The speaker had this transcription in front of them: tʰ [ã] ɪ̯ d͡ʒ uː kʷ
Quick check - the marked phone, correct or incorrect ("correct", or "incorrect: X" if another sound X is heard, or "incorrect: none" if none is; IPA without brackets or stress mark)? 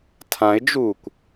correct